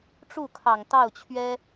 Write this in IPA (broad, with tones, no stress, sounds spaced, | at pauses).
ʈ͡ʂ u˥˩ kʰ ɑ˨˩ ŋ t̪ ɑ˥˩ ʊ̯ t͡ɕʰ ɥ ɛ˥